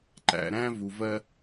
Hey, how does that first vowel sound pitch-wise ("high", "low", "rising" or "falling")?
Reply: low